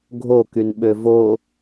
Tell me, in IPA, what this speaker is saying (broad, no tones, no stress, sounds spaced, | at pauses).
ɡʱ o k y n ɓ ø v o